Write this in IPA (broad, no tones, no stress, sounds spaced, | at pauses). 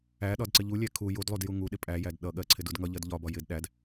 æ ɗ ɒ d ǀ ɪ ʎ u lʲ æ kʰ u j u d lˠ u d j u ŋ u ɗ ɪ pʼ æ j æ d ɗ ʌ ɠ ɜ ǀʰ ɪ d u d ŋ ʌ ʎ ɜ d ʎ ɒ b ɒ j ɪ d ɗ æ d